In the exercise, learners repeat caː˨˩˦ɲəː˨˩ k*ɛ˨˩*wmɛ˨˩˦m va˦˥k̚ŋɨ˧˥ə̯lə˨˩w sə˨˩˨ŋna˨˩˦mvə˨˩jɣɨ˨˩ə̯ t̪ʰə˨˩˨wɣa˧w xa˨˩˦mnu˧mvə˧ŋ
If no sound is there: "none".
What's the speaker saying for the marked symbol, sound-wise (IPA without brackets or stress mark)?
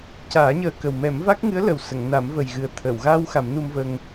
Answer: ə˨˩